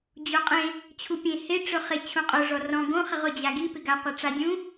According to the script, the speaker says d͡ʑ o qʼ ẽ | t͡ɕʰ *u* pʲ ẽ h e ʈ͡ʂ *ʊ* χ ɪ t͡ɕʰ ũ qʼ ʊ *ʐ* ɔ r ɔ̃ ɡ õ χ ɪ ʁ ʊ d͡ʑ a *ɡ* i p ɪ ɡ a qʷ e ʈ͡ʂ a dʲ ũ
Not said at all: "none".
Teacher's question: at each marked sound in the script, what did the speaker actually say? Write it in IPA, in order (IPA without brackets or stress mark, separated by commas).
u, ʊ, ʐ, ɡ